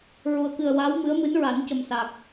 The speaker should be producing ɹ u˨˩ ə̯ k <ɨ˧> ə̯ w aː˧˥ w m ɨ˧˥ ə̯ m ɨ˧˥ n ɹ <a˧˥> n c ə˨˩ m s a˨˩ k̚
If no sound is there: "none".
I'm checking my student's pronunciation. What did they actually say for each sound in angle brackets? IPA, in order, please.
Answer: ɨ˨˩, a˨˩˦

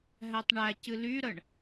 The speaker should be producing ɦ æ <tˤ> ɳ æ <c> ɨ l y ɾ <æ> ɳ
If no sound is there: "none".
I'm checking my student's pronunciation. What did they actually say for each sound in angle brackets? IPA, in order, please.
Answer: tˤ, c, ə

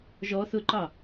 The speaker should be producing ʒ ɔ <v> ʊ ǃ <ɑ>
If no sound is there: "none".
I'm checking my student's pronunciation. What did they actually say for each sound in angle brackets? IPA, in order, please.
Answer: θ, ɑ

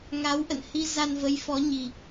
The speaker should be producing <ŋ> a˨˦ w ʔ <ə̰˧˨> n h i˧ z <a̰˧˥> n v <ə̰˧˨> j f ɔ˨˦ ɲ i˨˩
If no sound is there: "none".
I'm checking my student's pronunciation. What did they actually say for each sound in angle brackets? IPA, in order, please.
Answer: ŋ, ə̰˧˨, a˧, ə˨˦

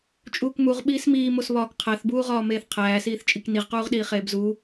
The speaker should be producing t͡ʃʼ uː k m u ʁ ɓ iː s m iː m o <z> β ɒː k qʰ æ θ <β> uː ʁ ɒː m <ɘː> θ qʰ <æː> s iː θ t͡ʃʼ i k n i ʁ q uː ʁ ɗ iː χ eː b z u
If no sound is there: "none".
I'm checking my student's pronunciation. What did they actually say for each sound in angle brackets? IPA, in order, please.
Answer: s, b, eː, æː

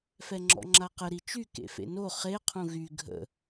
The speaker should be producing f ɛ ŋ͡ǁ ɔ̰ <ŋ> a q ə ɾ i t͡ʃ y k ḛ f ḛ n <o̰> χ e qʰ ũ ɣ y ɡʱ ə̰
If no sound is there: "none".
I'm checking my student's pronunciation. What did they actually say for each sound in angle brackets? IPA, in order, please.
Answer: ŋ͡ǁ, o

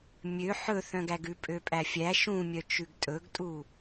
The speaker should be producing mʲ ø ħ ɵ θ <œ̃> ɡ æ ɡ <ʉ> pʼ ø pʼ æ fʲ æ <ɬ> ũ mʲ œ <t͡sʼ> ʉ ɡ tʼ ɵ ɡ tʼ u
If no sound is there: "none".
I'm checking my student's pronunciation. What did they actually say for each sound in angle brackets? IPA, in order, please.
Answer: œ̃, ʉ, ʃ, t͡ʃ

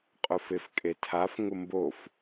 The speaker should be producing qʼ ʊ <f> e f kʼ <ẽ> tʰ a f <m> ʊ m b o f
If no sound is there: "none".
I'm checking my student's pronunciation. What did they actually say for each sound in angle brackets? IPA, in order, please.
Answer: f, e, ŋ

